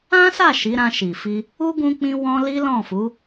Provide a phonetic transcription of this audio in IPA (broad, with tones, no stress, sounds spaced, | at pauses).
ã˦ s a˦˨ ʃ i˨˦ ɾ ã˧ ʃ i˨ f i˧ | u˦ ɡ ũ˦ k͡p ĩ˦ w ɔ̃˦ l i˦ l ɔ̃˦˨ f u˨˦